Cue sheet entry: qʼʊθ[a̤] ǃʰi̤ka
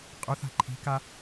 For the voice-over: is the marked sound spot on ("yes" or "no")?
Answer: yes